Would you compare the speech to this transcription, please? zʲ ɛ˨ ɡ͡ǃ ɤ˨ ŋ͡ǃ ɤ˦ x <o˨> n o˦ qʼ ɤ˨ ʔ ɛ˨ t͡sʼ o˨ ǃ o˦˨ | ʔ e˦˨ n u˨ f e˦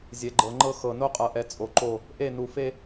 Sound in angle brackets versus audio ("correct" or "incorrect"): incorrect